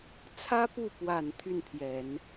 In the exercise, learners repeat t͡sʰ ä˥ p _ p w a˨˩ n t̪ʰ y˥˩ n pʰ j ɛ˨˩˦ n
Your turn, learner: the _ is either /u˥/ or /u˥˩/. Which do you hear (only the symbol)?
u˥˩